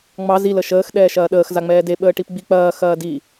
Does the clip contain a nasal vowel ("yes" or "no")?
no